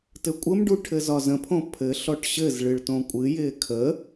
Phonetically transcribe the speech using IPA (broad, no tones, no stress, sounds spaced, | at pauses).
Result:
t ɘ kʷʼ ə m ɖ u ʈʰ ɘ z ɒ z ə̃ pʰ õ pʰ ɘ ɬ ɔ ʈ ɕ ɘ z ɭ ɨ ɭ t õ kʷʼ ɨ j ɪː kʰ ə